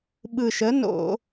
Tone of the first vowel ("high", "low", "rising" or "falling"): low